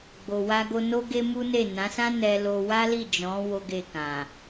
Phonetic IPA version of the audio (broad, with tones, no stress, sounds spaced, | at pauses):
ɡ͡b o˨ w a˧ ɡ o˧ n o˦ ɡ e˦ m u˦ n e˦˨ n ã˨˦ s ã˦ n ɛ˦ l o˦ w a˦ l i˦˨ d͡ʒ ɔ̃˨˦ w o˦ ɡ e˦˨ k ã˨